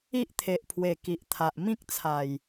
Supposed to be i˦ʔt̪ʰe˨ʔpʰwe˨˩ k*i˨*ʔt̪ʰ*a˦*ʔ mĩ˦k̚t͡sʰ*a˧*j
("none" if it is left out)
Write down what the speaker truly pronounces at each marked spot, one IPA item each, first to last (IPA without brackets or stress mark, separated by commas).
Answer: i˨, a˨, a˨˩